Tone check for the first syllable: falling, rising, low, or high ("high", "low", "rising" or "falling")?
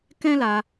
high